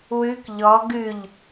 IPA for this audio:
wʉk ʎɔ ɡʉʎ

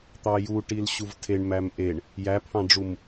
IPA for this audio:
t̪ɑju ʈilɕuvtʰeɳ mæmʔeɳ | jæpʰɑ̃ɖ͡ʐum

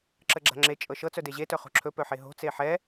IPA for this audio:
ǁəɡ͡ǁa̤ŋ͡ǁe t͡ʃʼɤʃɤ t͡sœdeʑe tœχo̤ǁʰɵ pœħeɦo̤ t͡seħɛ

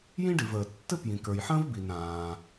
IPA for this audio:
jĩ˥ɖi˩vəː˩ tːɘ˥ pjĩ˩kə˞˩jħə̃ː˥vbi˩n ɾãː˩

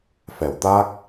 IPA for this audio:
fɛ˨˩˨wt̪a˦˥k̚

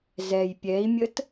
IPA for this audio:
zɛj pʲɛi̯mʲət

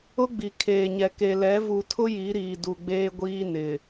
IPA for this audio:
ʊ˦ɡ͡bi˨kʰeː˨ɲɛ˨ ke˨ lɛ˨˦ vu˨tʰʊ˦ ji˨˦ɾiː˨ du˨ɡ͡beː˦ɡʷiː˦nɪ˨

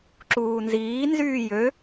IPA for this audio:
ǁuːnziː nzyːjø

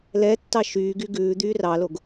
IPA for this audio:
lɛtːɑ ʃyːɡy ɡʉː d̪yːrɑloɡ

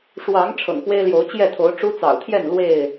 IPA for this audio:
ʂwɑ˨˦ŋ ʈ͡ʂʰɤ̰˨˩ŋpwe˦ɪ̯ljo˨˦ʊ̯ t͡ɕjɛ˥˨t̪ʰo˨˦ʊ̯ ʈ͡ʂu˦t͡sɑ̰˨˩ʊ̯t̪ʰjɛ˥˨n lwe˥˨ɪ̯

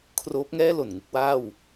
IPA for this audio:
kʰroː˦˥p̚ŋɛː˥˩ lo˨˩nŋu˥˩k̚waː˥˩w

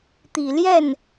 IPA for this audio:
t̪i˨˩ ljɛ˥˩n

